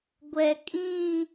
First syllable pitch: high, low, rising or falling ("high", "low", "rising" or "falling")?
low